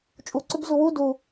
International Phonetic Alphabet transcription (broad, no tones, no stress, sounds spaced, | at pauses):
t͡ʃʼ u ǀ ʏ b z u w u d u